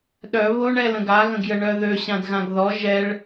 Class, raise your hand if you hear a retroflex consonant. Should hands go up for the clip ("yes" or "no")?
yes